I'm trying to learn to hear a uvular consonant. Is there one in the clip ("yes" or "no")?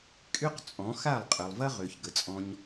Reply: yes